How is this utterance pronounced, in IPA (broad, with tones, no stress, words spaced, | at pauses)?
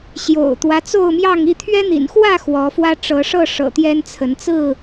ɕjo̰˨˩ʊ̯t̪wä˦ t͡so˥˨ʊ̯mjɑ˥˨ŋi˥˨ t̪ʰɥɛ˦n̪ḭ˨˩nxwä˥˨ xwɔ˨˦fwä˦ ʈ͡ʂɤ˨˦ʂɤ˥˨ ʂɤ̰˨˩t̪jɛ˦nt͡sʰə˨˦n t͡sɹ̩˥˨